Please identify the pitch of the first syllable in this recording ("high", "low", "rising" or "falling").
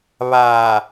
low